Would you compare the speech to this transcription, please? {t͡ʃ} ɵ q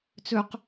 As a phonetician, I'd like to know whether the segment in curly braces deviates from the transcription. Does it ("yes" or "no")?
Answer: yes